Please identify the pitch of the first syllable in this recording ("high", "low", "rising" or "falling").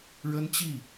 high